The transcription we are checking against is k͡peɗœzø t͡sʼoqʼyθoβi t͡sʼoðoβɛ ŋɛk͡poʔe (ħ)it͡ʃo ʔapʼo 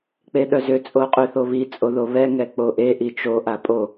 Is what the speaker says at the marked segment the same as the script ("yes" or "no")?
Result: no